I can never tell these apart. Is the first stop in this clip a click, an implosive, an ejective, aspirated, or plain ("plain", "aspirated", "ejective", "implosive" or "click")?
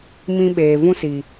implosive